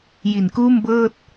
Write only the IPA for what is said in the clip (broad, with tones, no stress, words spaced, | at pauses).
ji˨˩nkuː˥˩mbɤː˥˩t̚